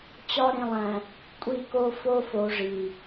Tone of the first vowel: high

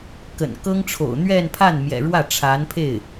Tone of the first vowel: low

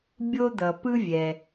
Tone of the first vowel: high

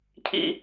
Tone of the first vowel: high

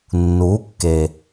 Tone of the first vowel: rising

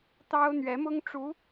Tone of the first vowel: high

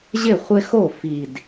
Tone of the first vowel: falling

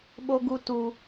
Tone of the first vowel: high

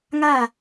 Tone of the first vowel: falling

